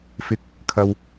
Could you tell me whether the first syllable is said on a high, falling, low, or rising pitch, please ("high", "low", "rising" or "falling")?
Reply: high